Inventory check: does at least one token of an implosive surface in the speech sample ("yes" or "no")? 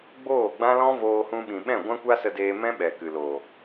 yes